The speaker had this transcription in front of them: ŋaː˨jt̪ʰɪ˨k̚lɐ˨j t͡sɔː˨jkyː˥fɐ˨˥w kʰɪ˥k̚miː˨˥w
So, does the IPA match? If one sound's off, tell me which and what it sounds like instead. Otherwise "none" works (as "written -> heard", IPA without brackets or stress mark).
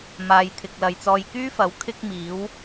ŋ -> m